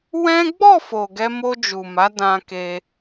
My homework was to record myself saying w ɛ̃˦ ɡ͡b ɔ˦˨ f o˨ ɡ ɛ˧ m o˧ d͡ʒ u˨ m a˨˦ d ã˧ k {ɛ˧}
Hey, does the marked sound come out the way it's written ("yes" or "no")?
no